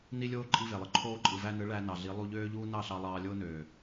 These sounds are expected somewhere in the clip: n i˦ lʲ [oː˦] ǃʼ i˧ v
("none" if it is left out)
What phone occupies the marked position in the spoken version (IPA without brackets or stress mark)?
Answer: oː˦